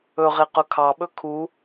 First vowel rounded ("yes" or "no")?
yes